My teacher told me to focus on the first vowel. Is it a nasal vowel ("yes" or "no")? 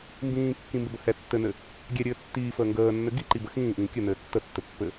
yes